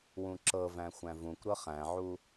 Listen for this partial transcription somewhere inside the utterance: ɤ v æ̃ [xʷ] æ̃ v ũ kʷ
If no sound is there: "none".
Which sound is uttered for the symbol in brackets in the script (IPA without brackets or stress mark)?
xʷ